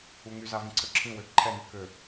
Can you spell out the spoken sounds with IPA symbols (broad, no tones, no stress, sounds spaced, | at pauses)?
u ŋ y z a v ĩ ǀʰ ø ǁʰ ĩ w ø ǃʰ ɛ n y k ø